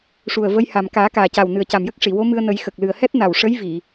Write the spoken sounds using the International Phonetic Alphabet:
ʂ u˨˩ ə̯ v ə˧˥ j h a˨˩ m k aː˨˩˦ k aː˨˩ c a˨˩ w n ɨ˨˩ ə̯ c a˨˩ m j ə˦˥ k̚ ʂ i˨˩˨ w o˧˥ m ɨ˧ ə̯ n ə˨˩˦ j x ə˨˩ k̚ l ɨ˨˩ ə̯ h ɛ˦˥ t̚ n a˨˩ w ʂ ə˧˥ j v i˨˩˨

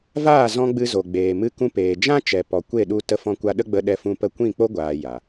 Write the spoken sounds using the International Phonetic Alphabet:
v aː˦˨ z ɔ̃˧ ɡ͡b ɨ˧ z o˨ ɡ͡b eː˨ m ɨ˧ k ũ˧ p eː˨ d͡ʒ ã˦ t͡ʃ ɛ˨ p ɔ˨ kʷ e˦˨ ɗ u˧ t ə˧ f ɔ̃˧ kʷ a˧ ɗ ə˦ ɡ͡b ə˧ ɗ ɛ˧ f ũ˧ p ə˧ kʷ ĩ˦˨ k͡p o˦ ɡʷ aː˨ j a˨

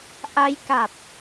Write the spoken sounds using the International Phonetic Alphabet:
ʔ a˦˥ j k a˨˩ t̚

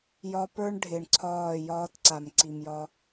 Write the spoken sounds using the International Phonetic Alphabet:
j ɒ˦ p ə˞˦ ɳ ɖʱ ɪ˨ ɳ ǀʰ ɒː˦˨ j ɒː˦ t ǀ a˨ m ǀ i˨ m j ɒ˦

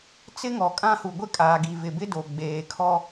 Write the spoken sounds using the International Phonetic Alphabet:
t͡s ɪ˦ ŋ ɔ˨ kʼ ã˦ h u˨ ɡʷ ɪ˦ kʼ aː˨ ɡ i˨ v ɪ˨ b ɪ˦ d o˨ ɡ͡b eː˨ kʰ ɔ˦

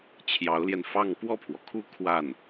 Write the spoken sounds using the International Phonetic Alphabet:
t͡ɕʰ j ɑ˧˥ ʊ̯ l j ɛ˧ n f ɑ˥˧ ŋ p w ɔ˥˩ pʰ w ɔ˩ kʰ u˥˧ kʰ w a˥˩ n

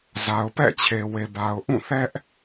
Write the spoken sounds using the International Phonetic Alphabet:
z a˨ ʊ̯ p ɛ̰˦˨ t͡ɕʰ e˨ w e˨ b a˨ ʊ̯ ʔ ũ˦˨ θ ɛ˦ ʔ

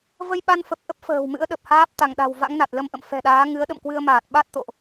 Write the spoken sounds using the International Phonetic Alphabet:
v ə˧ j ɓ a˧ n f ə˨˩ p̚ ʔ ə˦˥ p̚ f ə̤ː˨˩ w m ɨ̰˧˥ ə̯ ɗ ə˨˩ p̚ h aː˦˥ p̚ t̪ a˧˩ ŋ ɗ a̤˨˩ w v a̰˧˥ ŋ n a˨˩ t̚ l ə˧ m ʔ ə̰˧˨ m f ɛ̤˨˩ ɗ aː˨˦ ŋ ɨ˨˦ ə̯ ɗ ə̰˧˨ m k w ɨ˧ ə̯ m aː˨˩ t̚ ɓ a˦˥ t̚ t̪ o̰˧˨ ʔ

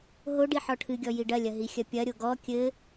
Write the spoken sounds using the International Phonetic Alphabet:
ɦ o ɖ i ħ ɔ ʈʰ ɨ ɡʲ ɔ j i ɖ ɐ lʲ ɐ ɦ i xʲ ɐ pʲ ɐ ɾʲ o ɡ ɔ kʲ ɘ

